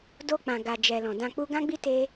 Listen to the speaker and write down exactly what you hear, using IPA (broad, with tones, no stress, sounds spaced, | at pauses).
d o˧ k͡p ã˨ ɡ a˨ d͡ʒ ɛ˨ l ɔ̃˨ d ã˧ k͡p u˦ ɡ ã˦ ɡ͡b i˦ t e˦